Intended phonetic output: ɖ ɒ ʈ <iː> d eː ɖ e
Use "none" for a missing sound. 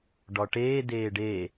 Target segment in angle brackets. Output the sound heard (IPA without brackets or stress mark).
eː